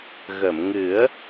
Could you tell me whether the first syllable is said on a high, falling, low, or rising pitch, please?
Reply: low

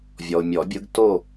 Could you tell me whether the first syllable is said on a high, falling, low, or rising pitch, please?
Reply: low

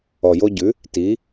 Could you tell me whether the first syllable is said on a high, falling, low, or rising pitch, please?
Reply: low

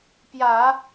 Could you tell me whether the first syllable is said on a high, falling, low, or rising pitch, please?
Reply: low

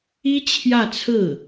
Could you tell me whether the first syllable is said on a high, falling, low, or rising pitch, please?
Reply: high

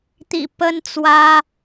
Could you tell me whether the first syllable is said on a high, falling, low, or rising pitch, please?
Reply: low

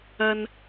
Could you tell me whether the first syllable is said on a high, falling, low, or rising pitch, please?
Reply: low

